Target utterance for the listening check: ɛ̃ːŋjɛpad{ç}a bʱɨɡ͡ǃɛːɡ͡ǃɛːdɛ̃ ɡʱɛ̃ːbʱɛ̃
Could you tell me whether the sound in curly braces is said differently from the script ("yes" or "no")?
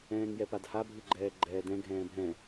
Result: yes